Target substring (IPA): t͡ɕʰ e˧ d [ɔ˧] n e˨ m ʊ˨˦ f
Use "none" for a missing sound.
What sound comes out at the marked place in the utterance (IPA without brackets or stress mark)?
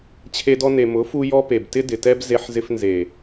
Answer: ɔ˧